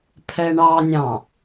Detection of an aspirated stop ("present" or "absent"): present